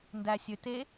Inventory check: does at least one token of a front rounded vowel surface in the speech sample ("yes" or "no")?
yes